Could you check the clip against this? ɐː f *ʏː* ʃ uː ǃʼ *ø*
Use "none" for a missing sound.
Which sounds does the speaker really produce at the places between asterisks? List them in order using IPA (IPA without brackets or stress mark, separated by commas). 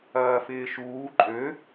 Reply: ɪː, ø